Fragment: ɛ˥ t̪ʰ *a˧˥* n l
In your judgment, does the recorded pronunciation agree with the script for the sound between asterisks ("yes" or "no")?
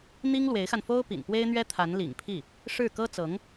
yes